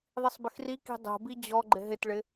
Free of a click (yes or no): no